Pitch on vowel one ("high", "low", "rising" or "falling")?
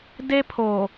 high